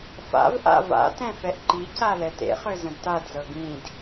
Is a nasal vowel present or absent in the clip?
present